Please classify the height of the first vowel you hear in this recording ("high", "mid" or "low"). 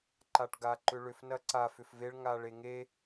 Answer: low